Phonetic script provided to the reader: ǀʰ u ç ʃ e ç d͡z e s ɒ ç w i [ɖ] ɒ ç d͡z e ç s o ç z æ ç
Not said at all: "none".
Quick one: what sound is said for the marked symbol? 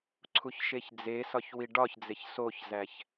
ɖ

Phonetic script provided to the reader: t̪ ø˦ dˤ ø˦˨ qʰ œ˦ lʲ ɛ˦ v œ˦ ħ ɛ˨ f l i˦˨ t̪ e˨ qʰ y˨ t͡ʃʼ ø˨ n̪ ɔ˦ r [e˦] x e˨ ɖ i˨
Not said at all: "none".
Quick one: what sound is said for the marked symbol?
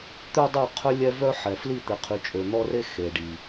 e˦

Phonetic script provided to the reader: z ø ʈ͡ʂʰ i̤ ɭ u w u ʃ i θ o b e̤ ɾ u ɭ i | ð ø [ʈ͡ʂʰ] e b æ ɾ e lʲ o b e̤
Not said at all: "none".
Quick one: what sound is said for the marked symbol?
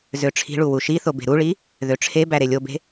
ʈ͡ʂʰ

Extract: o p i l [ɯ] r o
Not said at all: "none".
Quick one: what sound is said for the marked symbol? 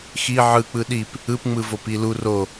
u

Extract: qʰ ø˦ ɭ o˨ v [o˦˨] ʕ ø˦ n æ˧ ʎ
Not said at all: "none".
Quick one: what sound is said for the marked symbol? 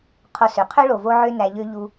o˦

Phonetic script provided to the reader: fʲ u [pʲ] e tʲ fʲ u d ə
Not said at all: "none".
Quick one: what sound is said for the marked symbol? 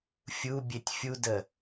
bʲ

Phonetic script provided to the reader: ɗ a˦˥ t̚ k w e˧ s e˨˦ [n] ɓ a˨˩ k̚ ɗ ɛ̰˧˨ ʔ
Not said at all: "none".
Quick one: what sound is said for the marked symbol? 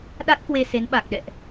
n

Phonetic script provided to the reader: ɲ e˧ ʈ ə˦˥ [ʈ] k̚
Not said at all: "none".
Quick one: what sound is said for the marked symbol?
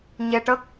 none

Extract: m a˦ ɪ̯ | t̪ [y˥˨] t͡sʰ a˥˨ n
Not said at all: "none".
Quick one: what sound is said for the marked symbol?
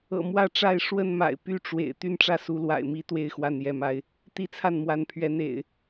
i˥˨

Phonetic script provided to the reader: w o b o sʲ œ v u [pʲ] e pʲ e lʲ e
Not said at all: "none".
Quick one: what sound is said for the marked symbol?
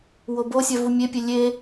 mʲ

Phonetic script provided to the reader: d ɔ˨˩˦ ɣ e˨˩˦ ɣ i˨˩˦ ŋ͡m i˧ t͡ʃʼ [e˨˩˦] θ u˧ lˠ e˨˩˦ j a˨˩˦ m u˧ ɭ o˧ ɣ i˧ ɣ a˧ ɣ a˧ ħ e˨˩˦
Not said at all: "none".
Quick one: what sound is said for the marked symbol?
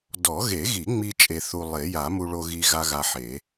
e˧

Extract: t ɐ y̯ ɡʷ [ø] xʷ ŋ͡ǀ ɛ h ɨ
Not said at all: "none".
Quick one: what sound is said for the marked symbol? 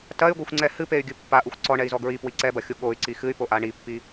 e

